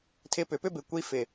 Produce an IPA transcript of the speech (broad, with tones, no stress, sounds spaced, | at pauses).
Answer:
tʰ ɪ˧ p ʏ˨ p ʏ˦ b ɪ˨ kʷ i˧ f ɪ˨